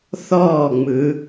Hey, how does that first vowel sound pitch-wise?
falling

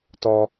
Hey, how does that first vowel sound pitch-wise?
high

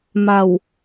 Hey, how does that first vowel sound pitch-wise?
low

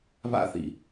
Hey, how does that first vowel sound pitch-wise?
high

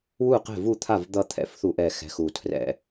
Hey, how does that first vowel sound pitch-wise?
falling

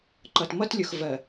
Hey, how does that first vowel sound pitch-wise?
low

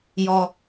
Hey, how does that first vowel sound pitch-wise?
low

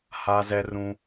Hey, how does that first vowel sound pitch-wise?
high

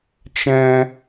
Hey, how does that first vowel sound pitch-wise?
high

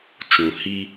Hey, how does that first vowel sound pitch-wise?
low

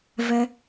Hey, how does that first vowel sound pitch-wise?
high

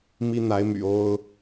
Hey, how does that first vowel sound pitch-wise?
high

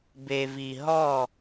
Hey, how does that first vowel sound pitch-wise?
low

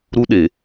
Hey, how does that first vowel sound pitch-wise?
high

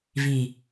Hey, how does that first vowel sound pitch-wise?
low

